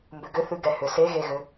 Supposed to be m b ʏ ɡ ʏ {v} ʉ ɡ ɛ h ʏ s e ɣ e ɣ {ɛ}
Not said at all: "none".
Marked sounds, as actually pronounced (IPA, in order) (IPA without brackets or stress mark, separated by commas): θ, ʏ